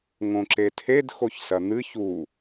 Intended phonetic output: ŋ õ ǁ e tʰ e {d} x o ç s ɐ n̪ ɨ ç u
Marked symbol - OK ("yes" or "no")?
yes